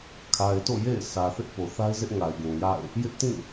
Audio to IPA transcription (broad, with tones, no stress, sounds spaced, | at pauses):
kʰ a˨ ɪ̯ t o̰˦˨ j ḛ˦˨ ɪ̯ s ä˨ θ ɪ˦ ʔ p o˨ θ a˦ ɪ̯ z ɪ˦ ʔ ŋ a˨ ɪ̯ ɡ ũ˨ j a̰˦˨ ɪ̯ | j ɪ˦ ʔ t ĩ˦˨